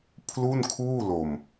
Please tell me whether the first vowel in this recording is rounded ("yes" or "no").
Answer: yes